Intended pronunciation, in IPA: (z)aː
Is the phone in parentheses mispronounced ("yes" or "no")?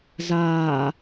no